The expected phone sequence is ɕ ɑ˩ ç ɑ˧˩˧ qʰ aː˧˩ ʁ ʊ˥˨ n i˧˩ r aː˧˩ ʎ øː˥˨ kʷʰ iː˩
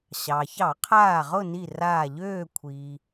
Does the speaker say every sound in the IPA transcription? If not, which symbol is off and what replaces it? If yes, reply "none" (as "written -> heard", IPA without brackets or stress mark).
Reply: none